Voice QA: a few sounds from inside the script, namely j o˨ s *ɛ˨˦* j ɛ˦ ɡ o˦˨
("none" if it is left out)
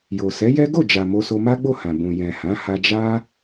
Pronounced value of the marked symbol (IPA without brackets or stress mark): ɛ˨˦